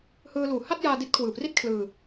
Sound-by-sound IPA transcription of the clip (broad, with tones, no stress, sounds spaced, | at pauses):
h ɯː˧ l uː˨˩ h a˥˩ t̚ j aː˧ d i˦˥ t̚ kʰ w ɯː˨˩ p r i˥˩ t̚ kʰ l ɯː˧